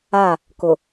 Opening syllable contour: falling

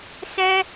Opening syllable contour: high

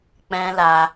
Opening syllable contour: high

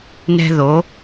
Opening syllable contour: high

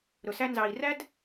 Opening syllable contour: low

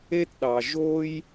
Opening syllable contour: high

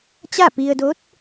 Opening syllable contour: falling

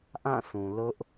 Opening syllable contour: falling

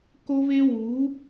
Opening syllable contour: high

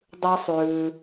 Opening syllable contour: high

